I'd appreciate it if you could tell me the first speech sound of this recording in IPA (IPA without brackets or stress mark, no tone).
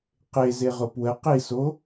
q